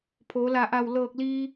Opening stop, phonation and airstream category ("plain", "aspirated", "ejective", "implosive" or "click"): aspirated